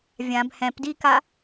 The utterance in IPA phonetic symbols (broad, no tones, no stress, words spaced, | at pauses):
vʲãb hɛ̃pdika